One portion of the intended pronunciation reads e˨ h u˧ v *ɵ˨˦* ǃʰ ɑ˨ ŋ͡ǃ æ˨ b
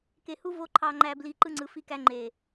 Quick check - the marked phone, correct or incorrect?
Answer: incorrect